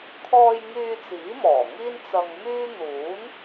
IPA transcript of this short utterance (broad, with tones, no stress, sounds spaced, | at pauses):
kʰ ɔː˧ j ŋ yː˧ t͡s iː˨˥ m ɔː˨˩ ŋ iː˥ n t͡s ɐ˧ ŋ m yː˥ n̪ uː˨˥ n